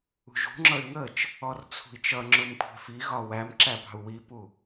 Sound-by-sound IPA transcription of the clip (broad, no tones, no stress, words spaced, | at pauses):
ṳʒṳŋ͡ǁʌy̯ ŋət͡ʃ | ɔrt͡sʰṳi̯t͡ʃʌŋ͡ǁʊm kʷʰɛ̤fiɣɒ wæmǁæ pɑ̤u̯wipu